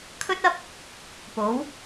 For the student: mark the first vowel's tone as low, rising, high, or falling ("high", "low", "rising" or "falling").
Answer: high